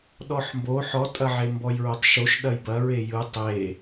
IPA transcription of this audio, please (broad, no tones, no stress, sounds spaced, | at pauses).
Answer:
ɗ ɔ ħ m b o ħ ɔ tʼ ɐ ʕ e m b ɔ j ɹ o tˤ ʃ o ʃ ɗ ɐ j b ɐ ɹ e j ɯ tˤ e